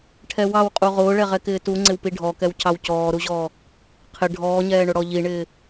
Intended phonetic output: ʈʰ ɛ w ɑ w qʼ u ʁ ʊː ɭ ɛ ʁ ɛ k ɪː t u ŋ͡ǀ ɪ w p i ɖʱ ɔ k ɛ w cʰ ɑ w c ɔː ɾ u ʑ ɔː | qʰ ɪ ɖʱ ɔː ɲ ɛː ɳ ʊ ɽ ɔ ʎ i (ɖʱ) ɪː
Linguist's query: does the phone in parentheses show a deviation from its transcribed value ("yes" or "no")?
yes